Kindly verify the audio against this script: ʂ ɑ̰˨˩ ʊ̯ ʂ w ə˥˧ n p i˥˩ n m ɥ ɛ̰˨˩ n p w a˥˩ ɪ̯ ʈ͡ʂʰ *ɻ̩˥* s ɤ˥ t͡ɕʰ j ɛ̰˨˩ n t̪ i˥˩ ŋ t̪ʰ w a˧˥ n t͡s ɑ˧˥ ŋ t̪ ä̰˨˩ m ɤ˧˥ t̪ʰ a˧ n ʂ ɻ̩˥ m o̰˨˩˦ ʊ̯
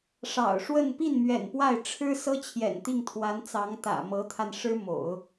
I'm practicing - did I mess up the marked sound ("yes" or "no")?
no